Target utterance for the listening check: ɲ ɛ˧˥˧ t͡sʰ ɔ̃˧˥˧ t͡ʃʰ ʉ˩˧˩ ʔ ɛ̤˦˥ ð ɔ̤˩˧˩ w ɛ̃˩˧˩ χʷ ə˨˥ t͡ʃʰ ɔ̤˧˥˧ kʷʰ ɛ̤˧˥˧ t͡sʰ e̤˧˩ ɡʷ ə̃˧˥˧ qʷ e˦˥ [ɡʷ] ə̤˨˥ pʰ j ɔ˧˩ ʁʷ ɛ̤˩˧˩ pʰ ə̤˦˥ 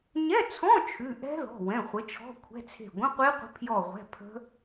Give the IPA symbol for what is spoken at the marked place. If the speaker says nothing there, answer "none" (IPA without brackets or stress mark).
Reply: qʷ